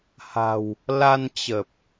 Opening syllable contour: low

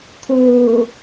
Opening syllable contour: low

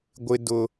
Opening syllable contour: high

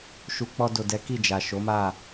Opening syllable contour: low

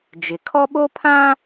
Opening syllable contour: low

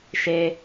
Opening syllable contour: high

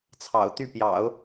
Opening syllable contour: low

